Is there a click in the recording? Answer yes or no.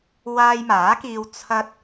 no